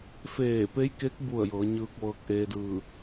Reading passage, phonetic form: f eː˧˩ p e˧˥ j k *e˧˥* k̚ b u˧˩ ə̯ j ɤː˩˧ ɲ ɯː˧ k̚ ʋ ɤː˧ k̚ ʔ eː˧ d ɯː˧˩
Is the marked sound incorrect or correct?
correct